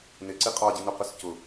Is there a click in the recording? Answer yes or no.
yes